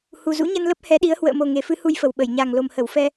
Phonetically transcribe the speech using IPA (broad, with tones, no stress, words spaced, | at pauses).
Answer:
hu˨˩zṵ˧˥ɲə˧n lə˦˥p̚hɛ˨˦ɗi˨˦ə̯ hwə̰ː˧˨mo˨˩ ŋe˨˩fɨ˨˦ hu˧jfə˨˩w ɓə˧˩jɲa˨˩ŋ lo˨˩mhə˧˩wfɛ˧